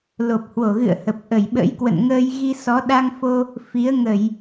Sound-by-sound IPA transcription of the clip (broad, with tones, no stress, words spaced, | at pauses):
lo˨˩p̚hwo˧˩ɣɨ̰˧˨ə̯hə˨˩p̚ ʔə˧˩jɓə̰˧˥jkwə̰˧˨nŋəː˧j ɣi˧ sɔ˨˦ ɗa˧ŋfo˧ | fi˨˦ə̯ŋə˧˩˨j